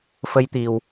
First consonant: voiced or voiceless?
voiceless